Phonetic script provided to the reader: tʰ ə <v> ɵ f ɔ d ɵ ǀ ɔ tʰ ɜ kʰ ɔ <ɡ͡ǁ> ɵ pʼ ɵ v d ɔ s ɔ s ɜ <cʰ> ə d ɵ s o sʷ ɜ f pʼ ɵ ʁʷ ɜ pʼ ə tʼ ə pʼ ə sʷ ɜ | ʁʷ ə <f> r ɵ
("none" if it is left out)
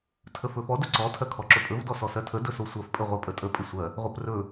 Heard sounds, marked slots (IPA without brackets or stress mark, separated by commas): f, ǁ, tʰ, p